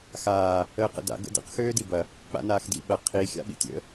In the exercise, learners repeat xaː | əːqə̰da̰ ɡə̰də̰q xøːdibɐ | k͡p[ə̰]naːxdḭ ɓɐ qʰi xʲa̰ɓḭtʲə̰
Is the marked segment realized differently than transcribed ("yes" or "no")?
yes